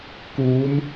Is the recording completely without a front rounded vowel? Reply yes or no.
yes